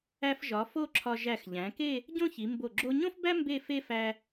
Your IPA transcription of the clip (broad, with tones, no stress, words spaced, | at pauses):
æ˧fʒɒ˩˧ fo˥˧ǁʰɒ˧ ʒæ˧˩xʎæ̃˩˧ke˥˧ | ɟõ˥çi˩˧mbo˧˩ ɡ͡ǁo˧ɲõ˥fbæ˥ mbe˥˧fe˥fæ˧